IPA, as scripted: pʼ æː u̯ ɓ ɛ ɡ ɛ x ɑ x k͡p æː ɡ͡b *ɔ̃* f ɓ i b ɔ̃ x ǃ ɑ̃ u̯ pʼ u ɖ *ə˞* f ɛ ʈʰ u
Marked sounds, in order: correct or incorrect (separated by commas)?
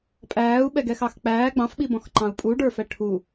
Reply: incorrect, correct